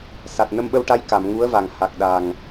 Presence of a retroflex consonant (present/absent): present